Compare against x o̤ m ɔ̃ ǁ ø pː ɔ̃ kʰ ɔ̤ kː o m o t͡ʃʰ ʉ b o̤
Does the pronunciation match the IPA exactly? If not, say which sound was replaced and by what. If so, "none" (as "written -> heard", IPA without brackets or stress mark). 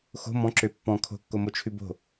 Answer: ɔ̤ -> o̤